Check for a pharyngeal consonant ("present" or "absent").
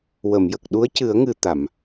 absent